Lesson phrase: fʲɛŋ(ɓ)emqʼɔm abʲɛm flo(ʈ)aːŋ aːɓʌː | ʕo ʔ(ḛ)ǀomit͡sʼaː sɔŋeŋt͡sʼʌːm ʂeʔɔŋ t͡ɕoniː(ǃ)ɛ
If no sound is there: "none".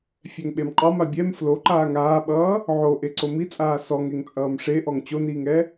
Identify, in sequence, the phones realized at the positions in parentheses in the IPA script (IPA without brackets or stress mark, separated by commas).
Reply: ɓ, ǃ, e, ŋ